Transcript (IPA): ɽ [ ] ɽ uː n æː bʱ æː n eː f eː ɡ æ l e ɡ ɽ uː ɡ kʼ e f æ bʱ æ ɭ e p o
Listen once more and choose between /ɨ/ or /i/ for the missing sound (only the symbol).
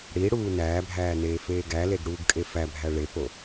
i